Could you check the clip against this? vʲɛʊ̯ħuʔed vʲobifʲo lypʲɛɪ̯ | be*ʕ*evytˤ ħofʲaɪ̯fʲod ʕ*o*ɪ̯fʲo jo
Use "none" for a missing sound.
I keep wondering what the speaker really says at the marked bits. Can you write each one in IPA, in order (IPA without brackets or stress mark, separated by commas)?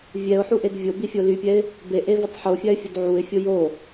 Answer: ʔ, u